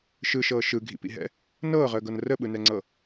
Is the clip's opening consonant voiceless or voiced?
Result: voiceless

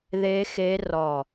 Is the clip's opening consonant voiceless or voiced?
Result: voiced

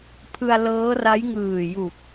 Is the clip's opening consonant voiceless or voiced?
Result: voiceless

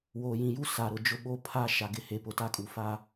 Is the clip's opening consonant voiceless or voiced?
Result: voiced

